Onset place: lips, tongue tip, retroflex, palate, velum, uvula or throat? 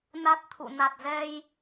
tongue tip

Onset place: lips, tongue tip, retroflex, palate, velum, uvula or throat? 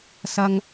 tongue tip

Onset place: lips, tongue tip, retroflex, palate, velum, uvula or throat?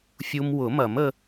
lips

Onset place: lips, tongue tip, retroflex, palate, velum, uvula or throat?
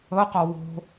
uvula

